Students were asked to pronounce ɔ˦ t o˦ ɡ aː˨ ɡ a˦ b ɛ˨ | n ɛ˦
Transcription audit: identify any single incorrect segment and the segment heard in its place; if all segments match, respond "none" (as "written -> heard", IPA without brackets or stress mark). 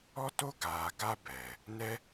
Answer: none